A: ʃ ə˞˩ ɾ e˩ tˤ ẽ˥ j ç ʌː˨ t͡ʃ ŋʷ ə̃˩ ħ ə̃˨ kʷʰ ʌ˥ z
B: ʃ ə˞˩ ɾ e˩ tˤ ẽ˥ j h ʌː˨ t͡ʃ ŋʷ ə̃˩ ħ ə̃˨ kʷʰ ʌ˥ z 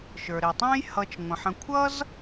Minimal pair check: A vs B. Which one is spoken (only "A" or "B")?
B